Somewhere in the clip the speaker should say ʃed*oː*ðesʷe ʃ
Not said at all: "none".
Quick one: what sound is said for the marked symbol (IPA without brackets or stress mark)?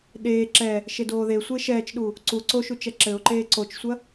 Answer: oː